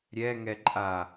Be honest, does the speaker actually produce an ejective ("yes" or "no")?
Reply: yes